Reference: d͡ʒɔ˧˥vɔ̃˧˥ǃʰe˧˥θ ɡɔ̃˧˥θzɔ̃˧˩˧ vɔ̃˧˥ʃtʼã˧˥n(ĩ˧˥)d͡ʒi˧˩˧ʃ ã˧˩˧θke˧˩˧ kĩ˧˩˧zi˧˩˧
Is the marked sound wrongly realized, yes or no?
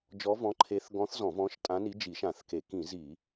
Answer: yes